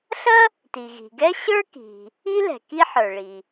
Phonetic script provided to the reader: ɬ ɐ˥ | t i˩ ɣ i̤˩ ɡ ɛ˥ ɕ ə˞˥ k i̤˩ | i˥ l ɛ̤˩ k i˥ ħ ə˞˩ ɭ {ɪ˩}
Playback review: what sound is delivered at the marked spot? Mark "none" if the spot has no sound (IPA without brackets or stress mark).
i˩